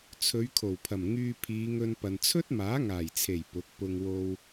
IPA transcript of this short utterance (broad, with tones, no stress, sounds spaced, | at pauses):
t͡sʰ ɵ˨˧ ɥ kʰ o˨˩ w pʰ ɐ˨˩ m ŋ yː˧ pʰ iː˨˧ ŋ ɵ˧ n p ɐ˨ n t͡sʰ ɵ˥ t̚ m aː˨˥ ŋ aː˨˩ j t͡sʰ e˨˩ j p ʊ˨˥ k̚ p ʊ˧ ŋ w o˧ w